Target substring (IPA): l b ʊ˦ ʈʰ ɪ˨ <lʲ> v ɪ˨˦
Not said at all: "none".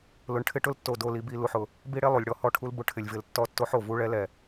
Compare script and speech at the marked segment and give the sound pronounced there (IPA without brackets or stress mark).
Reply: lʲ